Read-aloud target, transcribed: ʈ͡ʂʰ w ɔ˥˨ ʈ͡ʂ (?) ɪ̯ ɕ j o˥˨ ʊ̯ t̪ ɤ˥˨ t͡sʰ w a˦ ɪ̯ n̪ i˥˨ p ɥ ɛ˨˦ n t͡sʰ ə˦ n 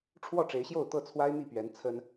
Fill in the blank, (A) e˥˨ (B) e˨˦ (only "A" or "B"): B